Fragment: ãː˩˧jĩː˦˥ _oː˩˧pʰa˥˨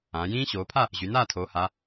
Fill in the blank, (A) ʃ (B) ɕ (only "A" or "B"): B